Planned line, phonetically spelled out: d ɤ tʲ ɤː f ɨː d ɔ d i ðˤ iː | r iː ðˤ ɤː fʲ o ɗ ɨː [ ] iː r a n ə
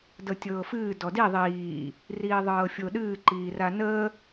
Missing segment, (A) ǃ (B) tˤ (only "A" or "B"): A